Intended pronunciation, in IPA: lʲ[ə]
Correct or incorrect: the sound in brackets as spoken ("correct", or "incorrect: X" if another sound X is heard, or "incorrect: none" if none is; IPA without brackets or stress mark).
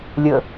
correct